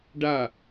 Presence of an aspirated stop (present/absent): absent